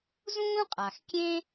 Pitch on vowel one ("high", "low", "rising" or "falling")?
high